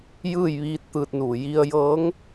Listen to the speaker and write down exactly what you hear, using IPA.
j ɯː˥˨ j ʋ iː˧˥ t̚ t̪ ɯː˧ t̚ n uː˧˩ j i˧ ə̯ j ɤː˧˥ ŋ

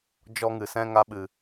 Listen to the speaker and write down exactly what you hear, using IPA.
d͡ʒ ɔ˦ ŋ ɨ˨ s ɛ̃˦ ŋ a˧ ɓ ɨ˨

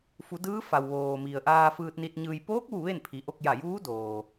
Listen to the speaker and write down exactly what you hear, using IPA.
f u˩˧ d ɯː˧˥ f a˩ w ʋ oː˩ m i˩ ə̯ ʔ aː˧ f ɯː˧ t̚ n i˧ t̚ ɲ ɯː˧ j p oː˧˥ k̚ ʋ u˧˩ ʋ e˥˨ n pʰ i˩˧ ʔ o˧ k̚ j a˧˩ j uː˧˥ d oː˩

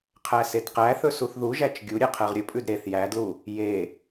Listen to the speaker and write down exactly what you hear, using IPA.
qʰ æ s e d q æ θ ɵ s u θ ð u ʒ æ t͡ʃ ɡʲ u ɾʲ e qʰ ɛ ʁ ɾʲ ɵ pʼ ʉ d ɾ e θ j æ d l u | j e

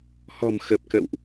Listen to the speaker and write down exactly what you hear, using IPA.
h ɔ̤˨˩ m x ə˨˩ p̚ k ə̰ː˧˨ w ʔ

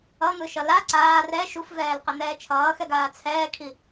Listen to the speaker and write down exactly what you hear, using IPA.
ʌ n̪ ɯ ʃ ʌ l a ǀ aː r ɛ ʃ u f v ɛː l q ɛ n̪ ɛː t͡ʃʰ ʌː x ɛ ɡ aː t͡sʰ ɛː kʰ i

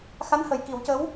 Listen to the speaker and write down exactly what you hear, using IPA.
x a˧˥ n h ə˨˩ j k i˨˩˦ w c ə˧˥ w

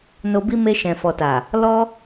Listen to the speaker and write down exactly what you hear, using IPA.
n o˧ b i˦ m e˧ ʃ ɛ̃˨ f ɔ˨ t a˨ | l ɔ˦

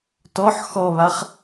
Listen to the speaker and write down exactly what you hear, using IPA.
t ɔ ħ x ɔ β a χ

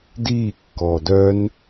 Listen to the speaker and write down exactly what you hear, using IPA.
d iː kː ɔː d œ n

